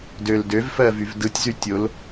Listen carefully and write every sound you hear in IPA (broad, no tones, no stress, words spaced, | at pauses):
døl døvfɜ vyvdɯtʲzy tʲol